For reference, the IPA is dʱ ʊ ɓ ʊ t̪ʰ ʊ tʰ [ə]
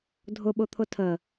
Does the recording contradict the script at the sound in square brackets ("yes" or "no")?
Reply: no